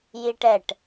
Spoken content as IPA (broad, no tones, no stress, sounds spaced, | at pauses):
j i ʈ ɛ ʈ